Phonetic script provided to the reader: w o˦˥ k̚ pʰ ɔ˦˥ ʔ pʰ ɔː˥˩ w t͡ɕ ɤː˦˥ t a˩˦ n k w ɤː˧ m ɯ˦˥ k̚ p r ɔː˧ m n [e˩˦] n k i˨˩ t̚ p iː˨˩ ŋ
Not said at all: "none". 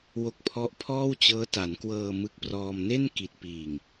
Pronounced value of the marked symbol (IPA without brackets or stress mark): e˥˩